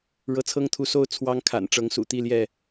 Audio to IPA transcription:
ɻ ɤ˨˦ t͡sʰ ɤ˦ ŋ t̪ʰ u˨˦ s o˥˨ ʊ̯ t͡sʰ w ɑ˦ ŋ kʰ a̰˨˩ n ʈ͡ʂ ɤ˨˦ ŋ s ṵ˨˩ t̪ i˥˨ l j ɛ˥˨

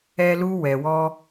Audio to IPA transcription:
ɛ˧ l u˧ w ɛ˨ w ɔ˧

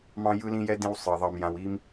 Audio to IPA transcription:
m ɑ̃˦ j ɯ˧ l ĩ˧ j ɛ˧ d ĩ˦ w sˤ ɯ˨ ɐ̯ ðˤ ɑ˧ m j ã˧ w i˦ m

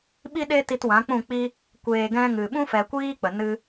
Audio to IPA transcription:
ɓ i˦ ɗ e˦ t i˧ t w ã˨˦ k͡p ũ˦˨ k͡p i˧ | kʷ eː˨ ɡ ɛ̃˧ ŋ ɨ˨ ɓ ũ˦ f ɛ˨ kʷ iː˦ k͡p ə˨ n ɨ˧

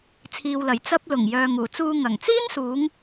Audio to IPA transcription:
t͡sʰ iː˨ w l ɐ˨˩ j t͡s ɐ˧ p̚ l ʊ˨˩ ŋ j œː˨ ŋ uː˨˩ t͡s uː˧ ŋ ɐ˨˩ ŋ t͡s iː˥ n s uː˨˧ ŋ

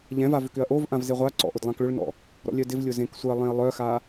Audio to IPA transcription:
ʎ ɛ̃ v a v ʏ k ʏ ɐ̯ ʔ o v ʔ ã v z e ʁʷ a ǀ ɔ̰ ʔ ʊ d lˠ ã k ɭ ʏ ɭ n ɔ̰ | ɾ ɔ̰ lʲ œ d ɪ v lʲ ʊ z ẽ k sʷ ɪ ɐ̯ lˠ ẽ ɐ̯ lˠ œ x a

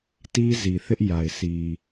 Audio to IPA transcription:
t i˦ z i˨ θ ɪ˦ ʔ j a˨ ɪ̯ sʰ i˨

